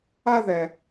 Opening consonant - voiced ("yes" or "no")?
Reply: yes